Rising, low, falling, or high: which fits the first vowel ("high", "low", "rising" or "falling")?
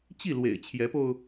falling